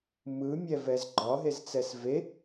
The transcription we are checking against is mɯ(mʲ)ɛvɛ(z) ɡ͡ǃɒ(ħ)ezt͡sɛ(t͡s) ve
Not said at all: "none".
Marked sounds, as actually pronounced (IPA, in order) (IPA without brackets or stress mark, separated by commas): mʲ, z, ɦ, s